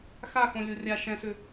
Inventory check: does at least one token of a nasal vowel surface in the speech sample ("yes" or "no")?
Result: yes